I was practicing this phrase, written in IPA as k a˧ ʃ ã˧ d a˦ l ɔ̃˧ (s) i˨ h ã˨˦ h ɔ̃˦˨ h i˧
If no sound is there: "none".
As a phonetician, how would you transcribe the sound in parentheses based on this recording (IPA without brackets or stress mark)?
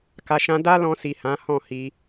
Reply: s